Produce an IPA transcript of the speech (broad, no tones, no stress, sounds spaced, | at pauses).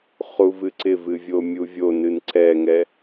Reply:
χ u v ɨ ǀ ɪ v ɨ vʲ o mʲ u vʲ o n ɨ n ǀ ɛ ŋ ɛ